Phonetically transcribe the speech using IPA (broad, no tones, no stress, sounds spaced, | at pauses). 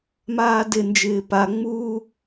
m aː d ɪ n d͡ʒ ɪː p a ŋ͡m uː